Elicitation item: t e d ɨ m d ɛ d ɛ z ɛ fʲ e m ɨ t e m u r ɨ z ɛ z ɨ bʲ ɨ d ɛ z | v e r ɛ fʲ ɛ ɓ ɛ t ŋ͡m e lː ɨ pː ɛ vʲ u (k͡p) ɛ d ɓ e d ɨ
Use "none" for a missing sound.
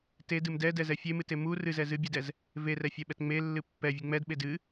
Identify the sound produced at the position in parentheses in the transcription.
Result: ŋ͡m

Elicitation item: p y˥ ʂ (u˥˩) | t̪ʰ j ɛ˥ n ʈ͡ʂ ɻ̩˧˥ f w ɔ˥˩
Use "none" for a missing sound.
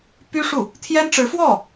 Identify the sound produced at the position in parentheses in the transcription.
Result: u˥˩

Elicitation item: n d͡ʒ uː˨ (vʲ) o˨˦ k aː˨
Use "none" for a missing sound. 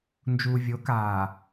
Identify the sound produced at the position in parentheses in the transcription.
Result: vʲ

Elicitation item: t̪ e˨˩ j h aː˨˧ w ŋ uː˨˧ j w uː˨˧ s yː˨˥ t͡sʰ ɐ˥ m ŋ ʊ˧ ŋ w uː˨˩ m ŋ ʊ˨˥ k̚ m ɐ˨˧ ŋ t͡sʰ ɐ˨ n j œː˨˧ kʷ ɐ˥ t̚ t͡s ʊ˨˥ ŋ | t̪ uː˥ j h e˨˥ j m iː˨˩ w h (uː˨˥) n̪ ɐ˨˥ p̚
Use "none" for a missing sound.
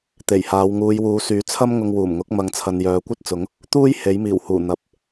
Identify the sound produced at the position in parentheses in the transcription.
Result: uː˨˩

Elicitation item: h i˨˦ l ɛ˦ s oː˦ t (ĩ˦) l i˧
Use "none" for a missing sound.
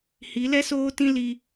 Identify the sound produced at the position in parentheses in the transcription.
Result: ĩ˦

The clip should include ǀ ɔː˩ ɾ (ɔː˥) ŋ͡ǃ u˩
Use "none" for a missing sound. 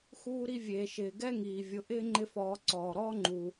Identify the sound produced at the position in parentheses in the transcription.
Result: ɔː˥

